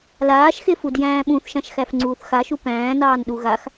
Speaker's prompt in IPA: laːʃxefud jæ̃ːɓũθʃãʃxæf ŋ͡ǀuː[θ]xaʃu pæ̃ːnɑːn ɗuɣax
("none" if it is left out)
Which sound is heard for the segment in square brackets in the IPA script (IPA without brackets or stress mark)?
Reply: θ